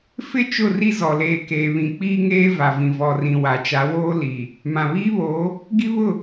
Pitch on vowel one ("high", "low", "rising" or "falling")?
falling